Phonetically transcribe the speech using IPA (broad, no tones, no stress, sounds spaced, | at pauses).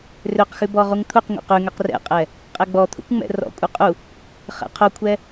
r ø q x ʉ b ɔ ʁ u ŋ t̪ʰ u q ŋʷ ɛ̰ q ʉ ŋ ø q r ɛ̰ qʼ ɛ | qʼ ɛ ɡ͡b ɔ t̪ʰ ṵ kʷ ŋ͡m ɛ̰ r ɔ̰ kʷʼ œ qʼ u | χ ɛ̰ qʰ o kʷʰ ɛ